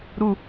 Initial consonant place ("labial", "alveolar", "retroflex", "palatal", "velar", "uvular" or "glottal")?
alveolar